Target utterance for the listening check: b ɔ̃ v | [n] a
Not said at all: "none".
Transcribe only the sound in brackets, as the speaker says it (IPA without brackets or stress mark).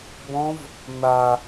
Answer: n